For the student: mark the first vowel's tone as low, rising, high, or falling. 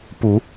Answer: rising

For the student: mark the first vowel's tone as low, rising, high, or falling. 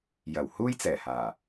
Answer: low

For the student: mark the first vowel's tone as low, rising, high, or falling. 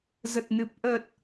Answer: low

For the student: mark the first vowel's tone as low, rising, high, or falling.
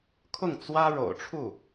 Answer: falling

